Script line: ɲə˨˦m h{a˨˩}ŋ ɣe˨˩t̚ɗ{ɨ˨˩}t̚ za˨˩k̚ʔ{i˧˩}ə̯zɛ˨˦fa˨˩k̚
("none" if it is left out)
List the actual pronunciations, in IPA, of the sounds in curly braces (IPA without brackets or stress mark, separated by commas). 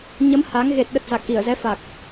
a˨˦, ə˨˩, i˧˩